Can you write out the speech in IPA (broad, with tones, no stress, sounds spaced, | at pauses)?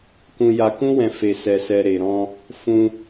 k ũ˧ j a˧ k ũ˦ w ɛ̃˧ f e˧ s ɛ˧ s ɛ˧ ɾ e˨ ɾ ɔ̃˧ | f ũ˧